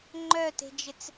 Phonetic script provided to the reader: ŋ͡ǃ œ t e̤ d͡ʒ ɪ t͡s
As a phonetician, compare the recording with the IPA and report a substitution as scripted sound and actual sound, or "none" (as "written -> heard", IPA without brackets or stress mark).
none